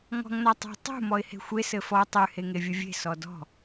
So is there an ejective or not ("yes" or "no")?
no